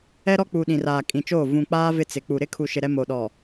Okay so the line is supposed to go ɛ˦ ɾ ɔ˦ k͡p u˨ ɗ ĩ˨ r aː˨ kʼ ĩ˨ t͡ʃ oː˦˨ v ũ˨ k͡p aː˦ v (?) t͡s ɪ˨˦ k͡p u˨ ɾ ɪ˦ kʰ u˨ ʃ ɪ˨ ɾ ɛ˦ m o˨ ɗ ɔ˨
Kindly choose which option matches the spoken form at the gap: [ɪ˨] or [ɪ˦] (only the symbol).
ɪ˦